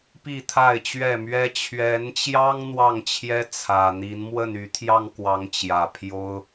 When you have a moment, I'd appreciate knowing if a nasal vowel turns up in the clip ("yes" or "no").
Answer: no